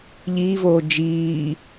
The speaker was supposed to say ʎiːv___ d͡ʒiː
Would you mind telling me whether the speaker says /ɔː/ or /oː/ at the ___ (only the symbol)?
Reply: oː